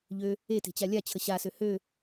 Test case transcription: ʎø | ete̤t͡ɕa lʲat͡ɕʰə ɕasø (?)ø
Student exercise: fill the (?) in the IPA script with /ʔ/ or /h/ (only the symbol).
h